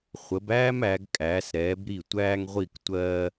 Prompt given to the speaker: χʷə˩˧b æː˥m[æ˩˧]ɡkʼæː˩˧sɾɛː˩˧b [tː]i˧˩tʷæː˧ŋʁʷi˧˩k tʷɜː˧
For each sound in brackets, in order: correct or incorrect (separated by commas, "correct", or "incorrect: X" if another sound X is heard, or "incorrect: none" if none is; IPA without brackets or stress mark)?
correct, incorrect: ɾ